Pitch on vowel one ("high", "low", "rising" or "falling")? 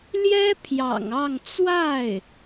high